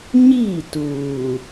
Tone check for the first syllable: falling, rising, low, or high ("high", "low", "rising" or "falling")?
falling